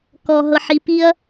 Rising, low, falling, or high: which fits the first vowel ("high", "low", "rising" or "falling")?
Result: high